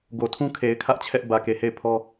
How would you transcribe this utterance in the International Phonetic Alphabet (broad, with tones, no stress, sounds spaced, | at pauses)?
ɡ o˨ tʰ ũ˦ kʰ e˨ ɪ̯ kʰ ä˦ ʔ t͡ɕʰ ɛ˦ ʔ b ä˨ k e˨ h e˦˨ ɪ̯ pʰ ɔ˦